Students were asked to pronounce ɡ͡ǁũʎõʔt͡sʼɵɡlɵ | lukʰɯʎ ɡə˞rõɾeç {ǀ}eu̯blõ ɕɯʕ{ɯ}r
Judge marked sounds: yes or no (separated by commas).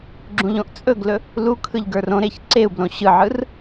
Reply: yes, yes